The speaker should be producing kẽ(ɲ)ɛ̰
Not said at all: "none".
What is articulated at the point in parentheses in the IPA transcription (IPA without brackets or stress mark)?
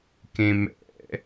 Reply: m